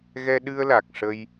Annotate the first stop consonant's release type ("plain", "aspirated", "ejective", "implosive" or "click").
implosive